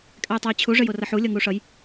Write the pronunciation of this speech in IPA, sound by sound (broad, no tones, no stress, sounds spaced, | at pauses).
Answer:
kʼ ɛ j tˤ œ j t͡ɕʰ u ʐ ɘ j o r ʌ ħ u lʲ ʌ ŋ u ʂ ʌ j